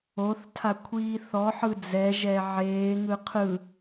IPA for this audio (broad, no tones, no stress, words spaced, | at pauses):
oθtʰakʷʰiː θɔħɯ d͡zɛʒɛ ʕeːŋɯ qʰɯ